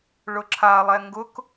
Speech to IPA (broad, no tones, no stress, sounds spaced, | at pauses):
ɭ ʊ ǁʰ a lˠ ɛ ŋ ɡ ʊ k